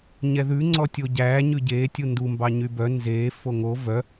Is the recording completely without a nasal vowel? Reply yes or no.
yes